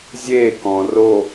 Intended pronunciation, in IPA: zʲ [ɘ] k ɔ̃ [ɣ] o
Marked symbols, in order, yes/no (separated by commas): no, no